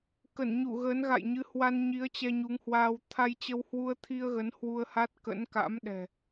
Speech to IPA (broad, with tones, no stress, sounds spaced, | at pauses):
k ə˧˩ n ɲ u˧˩ ɣ əː˨˦ n ɣ a̰˧˨ j ɲ ɨ˨˦ h w a˧ n ɲ i˨˦ ə̯ t͡ɕ ɛ˧ ɲ u˨˦ ŋ h w aː˧ w t̪ʰ a˧ j t͡ɕ ə˧ w h w u˧ ə̯ t̪ʰ i˧ ə̯ ɣ ə˨˦ n h w u˧ ə̯ h a˦˥ t̚ k ə̰˧˥ n k a̰˧˥ m ɗ ɛ̤˨˩